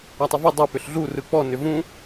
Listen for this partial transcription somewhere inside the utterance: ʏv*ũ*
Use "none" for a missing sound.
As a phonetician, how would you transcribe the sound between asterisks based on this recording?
ũ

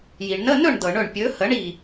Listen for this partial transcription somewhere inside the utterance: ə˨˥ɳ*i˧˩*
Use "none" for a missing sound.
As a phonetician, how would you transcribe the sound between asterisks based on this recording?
i˧˩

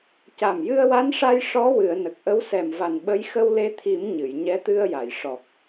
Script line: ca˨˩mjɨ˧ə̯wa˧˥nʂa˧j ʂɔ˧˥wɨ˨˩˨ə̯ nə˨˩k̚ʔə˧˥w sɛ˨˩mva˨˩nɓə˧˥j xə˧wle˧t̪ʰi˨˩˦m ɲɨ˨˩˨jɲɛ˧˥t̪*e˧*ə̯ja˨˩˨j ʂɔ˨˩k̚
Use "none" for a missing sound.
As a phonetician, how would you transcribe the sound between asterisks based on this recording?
ɨ˧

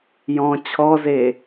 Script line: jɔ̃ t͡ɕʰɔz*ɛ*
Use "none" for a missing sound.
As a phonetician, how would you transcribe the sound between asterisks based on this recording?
e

